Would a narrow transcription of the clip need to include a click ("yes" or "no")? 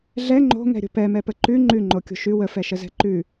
yes